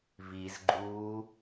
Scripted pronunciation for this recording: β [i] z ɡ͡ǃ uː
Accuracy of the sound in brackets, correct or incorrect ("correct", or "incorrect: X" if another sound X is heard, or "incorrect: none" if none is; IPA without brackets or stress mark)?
correct